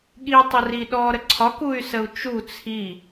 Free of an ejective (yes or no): yes